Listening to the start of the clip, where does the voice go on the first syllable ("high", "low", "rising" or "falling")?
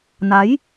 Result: rising